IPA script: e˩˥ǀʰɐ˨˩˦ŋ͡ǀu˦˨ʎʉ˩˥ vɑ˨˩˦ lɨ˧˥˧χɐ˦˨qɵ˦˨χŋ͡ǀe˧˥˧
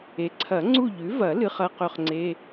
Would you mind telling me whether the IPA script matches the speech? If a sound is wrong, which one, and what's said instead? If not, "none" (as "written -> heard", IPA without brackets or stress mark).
ɑ˨˩˦ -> ɐ˨˩˦